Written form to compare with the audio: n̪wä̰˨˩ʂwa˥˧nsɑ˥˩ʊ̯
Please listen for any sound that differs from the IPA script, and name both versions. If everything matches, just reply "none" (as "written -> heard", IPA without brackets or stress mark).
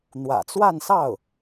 ʂ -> t͡s